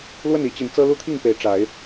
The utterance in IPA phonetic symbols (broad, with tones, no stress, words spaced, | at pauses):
lwə˥˨ni˨˦t͡ɕi˨˦n t͡sɤ˦ lu˦t̪ʰi˥˨ŋpe˨˦ɪ̯ ʈ͡ʂa˨˦ɪ̯